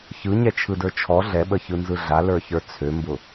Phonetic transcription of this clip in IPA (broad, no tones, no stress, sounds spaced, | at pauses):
ç ɯ ɲ ɛ t͡ʃʰ ɯ d ə˞ t͡ʃʰ ɔ ɮ ɛ ɓ ə ç ɯ n z ɯ ɮ a l ə˞ ç ə˞ t͡sʰ ø m b ʊ